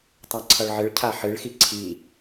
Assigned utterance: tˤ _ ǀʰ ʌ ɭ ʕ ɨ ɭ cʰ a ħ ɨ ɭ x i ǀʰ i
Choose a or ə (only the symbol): a